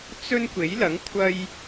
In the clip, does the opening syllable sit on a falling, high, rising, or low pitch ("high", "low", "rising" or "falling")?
high